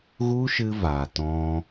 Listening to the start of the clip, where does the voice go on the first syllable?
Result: high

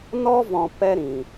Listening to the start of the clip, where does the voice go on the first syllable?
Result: high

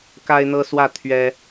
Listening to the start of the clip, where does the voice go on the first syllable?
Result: high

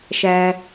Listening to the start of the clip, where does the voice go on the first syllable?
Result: high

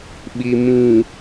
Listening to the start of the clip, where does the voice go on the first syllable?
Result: low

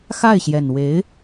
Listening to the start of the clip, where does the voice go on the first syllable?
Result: falling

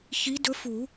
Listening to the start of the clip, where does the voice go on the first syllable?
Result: rising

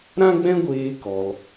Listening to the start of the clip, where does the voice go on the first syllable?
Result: high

